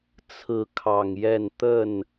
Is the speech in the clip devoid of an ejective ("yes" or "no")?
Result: yes